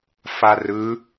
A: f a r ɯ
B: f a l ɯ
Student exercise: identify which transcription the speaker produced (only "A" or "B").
A